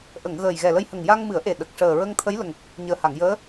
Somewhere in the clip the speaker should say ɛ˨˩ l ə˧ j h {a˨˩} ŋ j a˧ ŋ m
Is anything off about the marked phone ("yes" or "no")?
yes